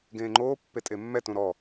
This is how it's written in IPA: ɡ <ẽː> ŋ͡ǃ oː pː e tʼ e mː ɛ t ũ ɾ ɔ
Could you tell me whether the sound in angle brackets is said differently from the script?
no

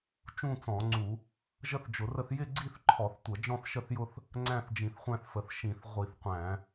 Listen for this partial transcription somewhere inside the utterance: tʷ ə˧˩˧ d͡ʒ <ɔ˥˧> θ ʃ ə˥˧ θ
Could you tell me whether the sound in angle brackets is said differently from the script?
yes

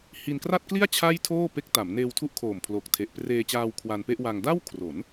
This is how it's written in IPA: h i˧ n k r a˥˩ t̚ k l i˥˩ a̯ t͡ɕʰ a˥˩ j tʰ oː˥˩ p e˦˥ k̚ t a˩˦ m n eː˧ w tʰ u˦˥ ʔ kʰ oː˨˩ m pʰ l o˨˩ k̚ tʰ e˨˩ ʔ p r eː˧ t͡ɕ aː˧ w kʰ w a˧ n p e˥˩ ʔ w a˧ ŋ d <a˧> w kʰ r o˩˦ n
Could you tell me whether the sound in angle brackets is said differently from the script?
yes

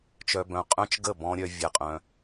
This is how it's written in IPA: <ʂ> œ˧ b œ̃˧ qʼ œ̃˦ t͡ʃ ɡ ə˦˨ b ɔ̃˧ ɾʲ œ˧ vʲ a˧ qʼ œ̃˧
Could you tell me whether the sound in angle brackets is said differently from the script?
yes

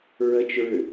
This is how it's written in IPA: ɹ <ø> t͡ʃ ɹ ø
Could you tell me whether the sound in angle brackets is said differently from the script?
yes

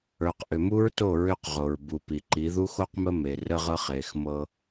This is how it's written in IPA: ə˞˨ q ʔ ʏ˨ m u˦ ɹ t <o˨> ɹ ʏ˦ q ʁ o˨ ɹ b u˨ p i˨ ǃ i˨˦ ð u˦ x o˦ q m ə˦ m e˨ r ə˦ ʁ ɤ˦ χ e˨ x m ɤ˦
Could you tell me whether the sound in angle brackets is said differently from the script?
yes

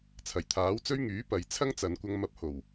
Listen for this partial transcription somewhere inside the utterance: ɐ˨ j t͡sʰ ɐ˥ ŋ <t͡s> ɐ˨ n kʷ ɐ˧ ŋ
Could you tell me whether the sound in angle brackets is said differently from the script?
no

